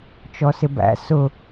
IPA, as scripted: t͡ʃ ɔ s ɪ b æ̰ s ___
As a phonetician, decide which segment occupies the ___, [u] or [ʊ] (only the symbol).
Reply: ʊ